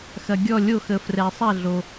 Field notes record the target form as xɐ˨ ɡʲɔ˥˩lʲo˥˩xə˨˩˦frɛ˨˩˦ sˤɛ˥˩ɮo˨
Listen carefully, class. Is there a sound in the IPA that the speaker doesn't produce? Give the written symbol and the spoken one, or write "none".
none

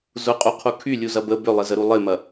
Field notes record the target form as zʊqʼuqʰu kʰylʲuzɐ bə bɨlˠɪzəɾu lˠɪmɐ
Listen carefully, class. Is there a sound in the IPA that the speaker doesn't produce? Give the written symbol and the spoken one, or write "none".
ɨ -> ʏ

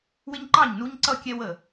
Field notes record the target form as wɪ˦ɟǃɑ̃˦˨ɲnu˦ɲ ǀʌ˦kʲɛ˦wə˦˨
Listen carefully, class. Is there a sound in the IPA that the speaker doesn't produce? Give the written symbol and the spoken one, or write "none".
ɟ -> ɲ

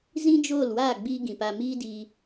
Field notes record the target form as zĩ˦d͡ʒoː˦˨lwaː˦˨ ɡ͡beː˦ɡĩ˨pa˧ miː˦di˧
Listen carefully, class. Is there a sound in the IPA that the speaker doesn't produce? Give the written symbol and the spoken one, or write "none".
eː˦ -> iː˦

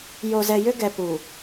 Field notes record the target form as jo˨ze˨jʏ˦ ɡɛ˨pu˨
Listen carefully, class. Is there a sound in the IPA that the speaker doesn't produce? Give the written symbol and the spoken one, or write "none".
e˨ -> ɛ˨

